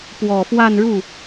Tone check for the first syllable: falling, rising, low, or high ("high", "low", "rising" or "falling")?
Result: low